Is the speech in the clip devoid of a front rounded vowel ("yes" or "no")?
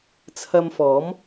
yes